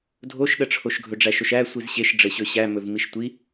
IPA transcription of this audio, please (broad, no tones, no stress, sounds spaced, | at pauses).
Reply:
dʱ o ʃ ɗ ə ʈ͡ʂʰ o ʃ ɡʱ ɵ ɖ͡ʐ æ ʃ o ʃ æ sʷ i z ɕ e ʃ ɖ͡ʐ ɘ ɕ ɵ ɕ æ m ɵ v m i ʃ tʷ i